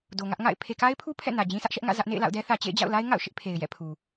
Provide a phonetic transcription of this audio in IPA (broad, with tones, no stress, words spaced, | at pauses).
do˨ŋä˦ʔŋa̰˦˨ɪ̯ pʰe˨ka˦ɪ̯pʰu˦ pʰɛ̰˦˨nä˨ d͡ʑĩ˦sʰä˦ʔʃɛ˦ʔ ŋä̰˦˨zä˦ʔ nḛ˦˨ɪ̯la̰˦˨ʊ̯dɛ˦θä˨ t͡ɕḛ˦˨ɪ̯d͡ʑa̰˦˨ʊ̯la˦ɪ̯ ŋa̰˦˨ʊ̯ʃɪ˦ʔ pʰe˨ɪ̯jɛ̰˦˨pʰu˨